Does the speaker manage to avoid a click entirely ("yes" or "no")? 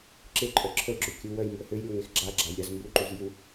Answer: no